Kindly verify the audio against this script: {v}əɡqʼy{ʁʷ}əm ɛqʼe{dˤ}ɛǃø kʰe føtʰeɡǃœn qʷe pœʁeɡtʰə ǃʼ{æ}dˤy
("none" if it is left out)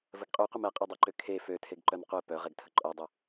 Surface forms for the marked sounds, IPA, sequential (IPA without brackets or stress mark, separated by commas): v, qʷ, dˤ, œ